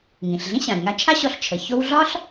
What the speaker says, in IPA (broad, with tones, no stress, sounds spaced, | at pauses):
ŋ ĩ˩ ɬ ɮ ĩ˥ ɕ ã˩ i̯ ŋ a˧ t͡ʃʰ a˥ ɕ ɔ˧ ɬ t͡ʃʰ ə˩ ç o˥ w ɮ ɒ˥ ɬ